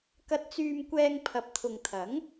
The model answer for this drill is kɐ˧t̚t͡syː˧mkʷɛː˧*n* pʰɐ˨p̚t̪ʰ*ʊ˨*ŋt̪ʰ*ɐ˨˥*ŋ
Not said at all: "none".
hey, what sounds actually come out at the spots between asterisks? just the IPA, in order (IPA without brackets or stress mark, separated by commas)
ŋ, ʊ˨, ɐ˨˥